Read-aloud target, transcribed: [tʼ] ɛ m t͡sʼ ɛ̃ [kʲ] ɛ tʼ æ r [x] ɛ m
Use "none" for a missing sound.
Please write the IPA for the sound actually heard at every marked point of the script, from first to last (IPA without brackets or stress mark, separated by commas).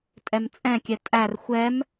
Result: tʼ, kʲ, xʷ